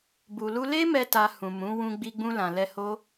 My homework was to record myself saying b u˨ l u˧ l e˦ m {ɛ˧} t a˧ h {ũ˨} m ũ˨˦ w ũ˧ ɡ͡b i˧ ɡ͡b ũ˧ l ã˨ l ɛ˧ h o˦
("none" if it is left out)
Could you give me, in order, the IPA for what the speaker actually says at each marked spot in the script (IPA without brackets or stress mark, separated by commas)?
ɛ˧, ũ˨